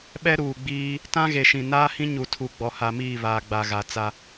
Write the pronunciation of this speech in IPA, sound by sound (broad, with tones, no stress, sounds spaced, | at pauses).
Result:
ɓ ɛ˦ ɾ uː˨ ɡ͡b iː˦ | t ã˦ ɣ e˨ ʃ ĩ˨ n aː˦ h ĩ˦ ɲ u˨ tʰ u˨ ɡ͡b ɔ˨ h a˨ m iː˦˨ β aː˨ ɡ͡b a˨ ɣ a˨ t͡s a˦